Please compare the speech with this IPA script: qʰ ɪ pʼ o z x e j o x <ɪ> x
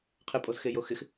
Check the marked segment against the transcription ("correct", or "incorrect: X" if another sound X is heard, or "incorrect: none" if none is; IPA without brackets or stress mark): correct